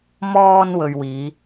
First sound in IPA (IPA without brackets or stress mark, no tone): m